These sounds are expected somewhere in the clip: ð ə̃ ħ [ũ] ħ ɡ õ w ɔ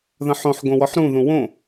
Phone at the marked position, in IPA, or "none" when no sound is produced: õ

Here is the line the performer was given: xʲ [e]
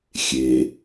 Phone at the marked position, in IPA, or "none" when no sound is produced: e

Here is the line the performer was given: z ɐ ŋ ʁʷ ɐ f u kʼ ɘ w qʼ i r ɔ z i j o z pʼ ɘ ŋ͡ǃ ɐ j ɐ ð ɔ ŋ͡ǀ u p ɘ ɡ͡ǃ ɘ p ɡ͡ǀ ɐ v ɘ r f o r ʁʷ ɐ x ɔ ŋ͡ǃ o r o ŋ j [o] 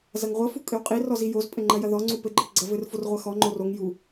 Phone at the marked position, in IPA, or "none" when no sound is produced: u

